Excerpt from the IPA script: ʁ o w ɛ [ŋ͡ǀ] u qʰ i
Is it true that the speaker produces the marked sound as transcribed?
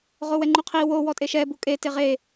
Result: no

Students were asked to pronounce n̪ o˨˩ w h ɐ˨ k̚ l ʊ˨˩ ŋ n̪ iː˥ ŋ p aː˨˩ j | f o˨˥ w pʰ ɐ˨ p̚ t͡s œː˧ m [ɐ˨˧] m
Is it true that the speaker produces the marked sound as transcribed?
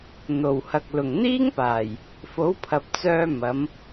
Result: yes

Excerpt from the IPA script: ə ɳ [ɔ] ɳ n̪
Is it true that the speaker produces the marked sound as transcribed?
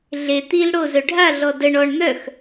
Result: yes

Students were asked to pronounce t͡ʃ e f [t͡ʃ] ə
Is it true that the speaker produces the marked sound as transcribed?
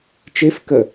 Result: no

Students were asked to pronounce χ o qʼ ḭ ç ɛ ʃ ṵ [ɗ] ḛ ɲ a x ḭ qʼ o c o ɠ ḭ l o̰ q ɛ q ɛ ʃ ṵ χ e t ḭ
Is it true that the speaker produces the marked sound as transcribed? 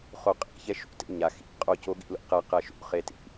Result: no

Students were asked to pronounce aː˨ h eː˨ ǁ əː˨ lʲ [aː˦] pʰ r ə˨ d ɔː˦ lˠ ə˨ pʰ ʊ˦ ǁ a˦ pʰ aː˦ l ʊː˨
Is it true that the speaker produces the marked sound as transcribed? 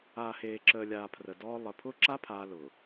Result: no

